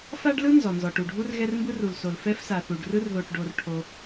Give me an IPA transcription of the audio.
f a˥ ɖ l ɯ˥ n z ɔ˩ n z ɔ˩ ʈ u˩ ɖʱ u˥ r ɣ ɛ˥ r m b ɯ˥ r u˩ l s o˩ l f ɛ˥ f s a˩ θ u˩ ɖ r ɯ˥ r ð o˩ ʈ ɖ o˩ r ʈʰ o˩

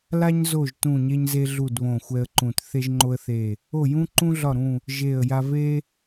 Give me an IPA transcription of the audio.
l a˥ ɲ z o˦˨ ʒ t ũ˦˨ ɲ e˥ ɲ z e˥ ɮ u˦˨ d β õ˦˨ xʷ ɛ˥ ə̯ ǃ ũ˦˨ t θ e˥ ʒ ŋ͡ǃ o˥ ə̯ θ e˦˨ | o˦˨ j ũ˥ ǃ ũ˥ ɮ ɒ˦˨ ɾ ũ˦˨ | ʒ e˦˨ ə̯ j a˥ v e˥

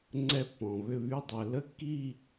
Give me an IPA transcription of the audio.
ŋ͡ǀ ɛ˥˧ pː ɔ̃˨ β ʏ˥˧ β y˥˧ dˤ ɛ˨ l ə˥˧ kː i˥˧

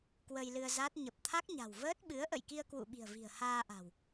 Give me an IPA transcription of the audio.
k w ə˧ j l ɨ˧ ə̯ z a˦˥ t̚ ɲ ə˨˩ p̚ t̪ʰ a˦˥ k̚ ɲ a̤˨˩ w v əː˦˥ t̚ ɓ ɨ˨˦ ə̯ ʔ ə̰˧˨ j k i˧ ə̯ k w ṵ˧˨ ɓ i̤˨˩ ə̯ v i̤˨˩ ə̯ h aː˧ ʔ a̤˨˩ w

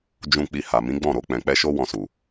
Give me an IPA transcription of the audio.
d͡ʒ ũ˧ k͡p i˧ h a˨ m ĩ˨˦ ɡ͡b ɔ̃˦˨ ɾ o˧ k͡p ɛ̃˨ k͡p ɛ˧ ʃ o˦ w ɔ̃˧ s u˨

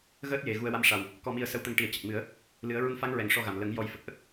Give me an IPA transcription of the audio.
ɣ əː˦˥ t̚ j e˨˩ ɣ u˧ ə̯ w a˧ m ʂ a˨˩ w | k ɔ˧ m i˧ ə̯ s ə˧ w t̪ ə˧ ŋ ʈ i˨˩˦ ə̯ c ə˨˩ k̚ m ɨ˨˩˦ ə̯ | l ɨ˨˩˦ ə̯ ɹ u˧ n f a˧˥ ŋ ɹ ɛ˨˩ ŋ ʂ ɔ˧ ɣ a˨˩ m l ə˨˩˦ ŋ j ɔ˨˩˦ j f ə˨˩ k̚ ʔ ə˦˥ k̚

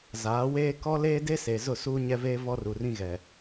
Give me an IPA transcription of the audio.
z aː˨˦ w eː˦ k ɔ˦ l eː˦ d e˦ s e˨ z ʊ˦˨ s uː˦ ɲ ɛ˦ v eː˦ v ɔ˦ r u˨ r ĩ˦ ɣ ɛ˨

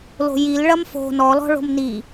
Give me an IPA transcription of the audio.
l o̤ j i l ɭ ɐ m f o̤ n ɔ l ɔ̤ ɭ o̤ m n i

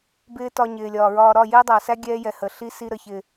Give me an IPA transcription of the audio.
b ɪː˦ t ɒ˧ ɲ ɪː˨ lʲ ɒː˨ ɹ ɒː˧ ɾ ɒ˦˨ j ɪː˦ dˤ æ˨ s æ˦ ɡʲ ɛː˦ j ɛ˨ h ə˨ ɬ i˦ s i˧ ɾ ə˨ ç ɪ˨

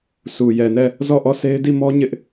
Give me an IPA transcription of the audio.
s u˨ j ɛ˨ n ɛ˦˨ | z ɔ˦˨ ʔ ɔ˦˨ sʰ e˦ ɪ̯ d i˦˨ m ɔ˦ ɲ ɪ˦ ʔ

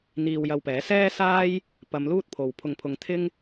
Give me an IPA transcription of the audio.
n̪ iː˧ w j ɐ˧ w p ɛː˨˥ s ɛː˥ s aː˥ j | p ɐ˨˧ m l uː˥ t̚ pʰ o˨ w pʰ ʊ˧ ŋ pʰ ʊ˧ ŋ t̪ʰ ɪ˥ ŋ

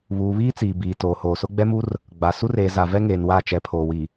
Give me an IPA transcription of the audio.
β uː˨ β iː˦ t͡s iː˨ b iː˨ t oː˨ h oː˨ s ʊ˦ ɡ͡b ɛ˦ m u˦ r | ɡ͡b a˨ s u˦ r eː˨ z a˨ v ɛ˦ ŋ eː˨ n w a˦˨ t͡ʃ ɛ˨˦ pʰ oː˨ w i˨

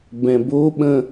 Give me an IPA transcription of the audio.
b ɛ̃ b o ɓ ə̃

